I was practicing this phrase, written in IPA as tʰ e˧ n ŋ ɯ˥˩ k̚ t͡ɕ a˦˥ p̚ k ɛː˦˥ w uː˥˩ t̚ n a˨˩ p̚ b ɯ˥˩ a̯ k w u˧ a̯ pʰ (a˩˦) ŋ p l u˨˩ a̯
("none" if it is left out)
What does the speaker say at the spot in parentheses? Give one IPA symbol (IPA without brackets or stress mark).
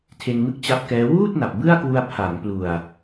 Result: a˩˦